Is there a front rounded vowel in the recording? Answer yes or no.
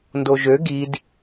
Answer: yes